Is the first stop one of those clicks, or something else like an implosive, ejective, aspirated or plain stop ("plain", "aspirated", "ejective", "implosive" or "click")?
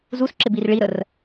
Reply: click